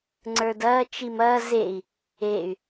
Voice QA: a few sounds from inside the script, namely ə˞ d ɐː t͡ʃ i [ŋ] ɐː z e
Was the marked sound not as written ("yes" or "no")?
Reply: yes